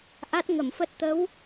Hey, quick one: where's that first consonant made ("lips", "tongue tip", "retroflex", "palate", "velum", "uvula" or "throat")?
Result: throat